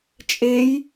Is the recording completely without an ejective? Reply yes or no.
no